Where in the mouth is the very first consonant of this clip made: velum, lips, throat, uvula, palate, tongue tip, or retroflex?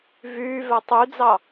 lips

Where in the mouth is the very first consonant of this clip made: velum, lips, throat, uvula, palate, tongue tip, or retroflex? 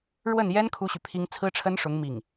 retroflex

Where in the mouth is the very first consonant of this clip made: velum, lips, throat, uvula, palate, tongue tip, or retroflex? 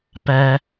lips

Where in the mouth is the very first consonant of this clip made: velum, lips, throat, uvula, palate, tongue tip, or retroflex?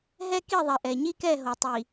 throat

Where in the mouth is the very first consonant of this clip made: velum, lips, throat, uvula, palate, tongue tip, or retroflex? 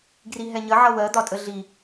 velum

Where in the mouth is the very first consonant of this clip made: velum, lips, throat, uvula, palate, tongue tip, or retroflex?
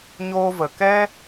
palate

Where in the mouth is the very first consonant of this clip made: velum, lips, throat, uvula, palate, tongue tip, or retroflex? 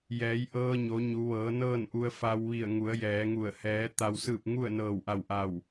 palate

